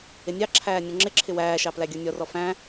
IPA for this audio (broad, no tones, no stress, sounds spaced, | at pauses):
ɪ nʲ ɑ ǁʰ æː nʲ ɔ̃ ŋ͡ǁ ɪ ǁʰ ɪ w æː ʃ ɑ p l æ ɡʲ ə˞ nʲ ɔ r ɔ f æ̃